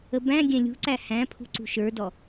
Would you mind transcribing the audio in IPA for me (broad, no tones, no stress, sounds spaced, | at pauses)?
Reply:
ə b æ̃ ɡʲ ɛ̃ lʲ ṳ ǀ æ h æ̃ pʰ ṳ ǀ ṳ ʃ ə˞ d ɔ